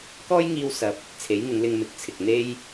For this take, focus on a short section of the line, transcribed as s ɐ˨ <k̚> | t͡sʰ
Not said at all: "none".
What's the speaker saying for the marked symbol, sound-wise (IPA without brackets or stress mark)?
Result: p̚